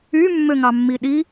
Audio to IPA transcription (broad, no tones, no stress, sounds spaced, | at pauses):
y mː ø ŋ ɑ mː i ɗ i